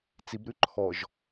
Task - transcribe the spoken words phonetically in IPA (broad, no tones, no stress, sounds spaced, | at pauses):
t͡s i b ɾ ʉ ǃʰ ɔ ʒ